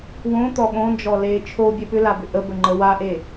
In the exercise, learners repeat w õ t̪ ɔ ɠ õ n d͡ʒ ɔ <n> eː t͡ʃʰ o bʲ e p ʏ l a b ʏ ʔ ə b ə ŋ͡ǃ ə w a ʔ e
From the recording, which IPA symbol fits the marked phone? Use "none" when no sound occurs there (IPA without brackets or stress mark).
l